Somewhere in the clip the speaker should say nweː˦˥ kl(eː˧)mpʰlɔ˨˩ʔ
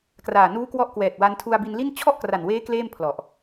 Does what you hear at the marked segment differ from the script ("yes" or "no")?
yes